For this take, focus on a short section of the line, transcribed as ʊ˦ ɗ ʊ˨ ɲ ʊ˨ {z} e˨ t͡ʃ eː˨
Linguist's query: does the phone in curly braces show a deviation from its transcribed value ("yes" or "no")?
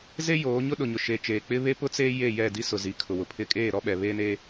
yes